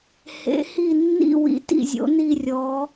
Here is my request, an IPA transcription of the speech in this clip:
hḛ˨˦hi˦˨nːḭ˦˨ wḭ˨˦tḭ˦˨zʲo̰˨˦ ni˦˨rʲɔ˨˦

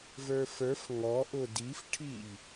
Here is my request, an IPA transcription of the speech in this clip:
və˞fə˞f ŋɔʔʊ difʈʰiʎ

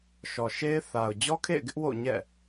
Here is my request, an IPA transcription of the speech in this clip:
ʃɔ˨ʃe˦ɪ̯ θa˨ʊ̯ d͡ʑɔ˦kʰḛ˦˨ɪ̯ɡɪ˦ʔ wo̰˦˨ɲɛ̰˦˨

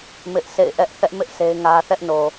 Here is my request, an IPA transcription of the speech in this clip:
mɪ˦ʔsʰḛ˦˨ɪ̯ ʔɛ˦ʔ θɛ˦ʔmɪ˦ʔ se˦ɪ̯ŋä˦ θɛ˦ʔno˨

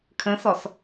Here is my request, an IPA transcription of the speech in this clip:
kʰə̃sɔs

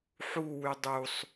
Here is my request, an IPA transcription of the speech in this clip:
ħu wydˤusˤ

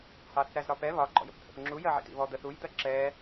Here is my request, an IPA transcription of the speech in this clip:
hɑθɾæzɾɒpɛ βɒ ɡ͡ǃɔ̰jə̰pt̪ʰə̰pŋ͡ǁu jɜʕḭtḭβɔ d̪əθuj d̪ɜǁɛ

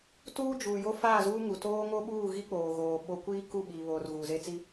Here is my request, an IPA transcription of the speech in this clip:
tuː˦d͡ʒuː˨ jo˦faː˦˨zuː˦ŋu˨ toː˦ŋo˦ɓuː˦˨ ɣi˦k͡poː˨ɣoː˨ ɓo˦ kʷiː˦ku˦˨ɓiː˨βoː˨r ɣuː˨ze˦t͡si˦

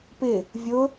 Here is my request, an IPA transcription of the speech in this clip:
pɪ | vʲʊ

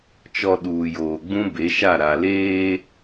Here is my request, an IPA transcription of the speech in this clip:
t͡ʃɔ˨ ɗuː˨joː˨ ɡ͡bũ˦be˨˦ʃa˦˨ ɾa˨leː˦

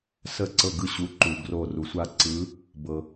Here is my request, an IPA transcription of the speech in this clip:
sə˦˨ǀɤ˦˨ɡɯ˦˨ɕu˨˦ ǃu˩ ɡro˦˨ ru˩sʷa˦˨ǀɯ˨˦ | bɤ˩

